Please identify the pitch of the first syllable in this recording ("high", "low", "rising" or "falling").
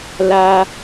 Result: high